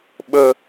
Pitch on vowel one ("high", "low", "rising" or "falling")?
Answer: high